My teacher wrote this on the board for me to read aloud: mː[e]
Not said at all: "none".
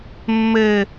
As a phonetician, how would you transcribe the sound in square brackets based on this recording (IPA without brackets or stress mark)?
ɘ